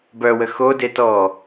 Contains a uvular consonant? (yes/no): no